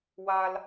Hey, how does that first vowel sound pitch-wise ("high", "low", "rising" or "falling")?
low